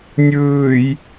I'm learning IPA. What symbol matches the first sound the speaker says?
nʲ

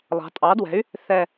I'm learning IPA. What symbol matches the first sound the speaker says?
lˠ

